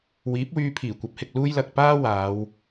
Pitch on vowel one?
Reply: rising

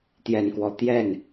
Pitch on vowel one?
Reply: low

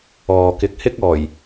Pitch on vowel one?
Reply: low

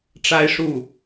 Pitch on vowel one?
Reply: high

